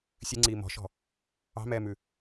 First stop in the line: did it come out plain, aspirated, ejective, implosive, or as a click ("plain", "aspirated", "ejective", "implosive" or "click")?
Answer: click